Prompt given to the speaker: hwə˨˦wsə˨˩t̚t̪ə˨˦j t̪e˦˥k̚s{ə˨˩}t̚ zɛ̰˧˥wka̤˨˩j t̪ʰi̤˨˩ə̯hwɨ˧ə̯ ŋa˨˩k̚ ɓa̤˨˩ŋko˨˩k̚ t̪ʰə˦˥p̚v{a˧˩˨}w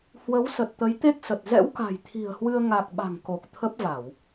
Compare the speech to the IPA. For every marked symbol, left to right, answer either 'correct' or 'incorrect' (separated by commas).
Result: correct, correct